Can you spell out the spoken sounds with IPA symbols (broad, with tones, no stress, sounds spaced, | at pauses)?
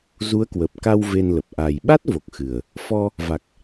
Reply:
z u˨˦ ə̯ k w ə˨˩ p̚ k a˧ w v e˧ n l ə˨˩ p̚ ʔ a˨˩ j ɓ a˦˥ t̚ v o˨˩ k̚ x ɨ˨˩ ə̯ | f ɔ˧ | v a˨˩ k̚